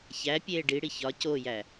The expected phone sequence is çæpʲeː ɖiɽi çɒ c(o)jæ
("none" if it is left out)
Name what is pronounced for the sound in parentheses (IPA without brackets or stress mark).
o